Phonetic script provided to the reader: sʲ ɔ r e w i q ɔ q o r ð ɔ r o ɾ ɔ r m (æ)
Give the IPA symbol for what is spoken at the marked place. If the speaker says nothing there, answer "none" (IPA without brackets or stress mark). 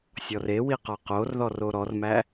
æ